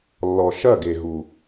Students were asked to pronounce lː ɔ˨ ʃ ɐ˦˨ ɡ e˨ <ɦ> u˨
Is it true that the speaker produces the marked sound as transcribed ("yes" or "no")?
yes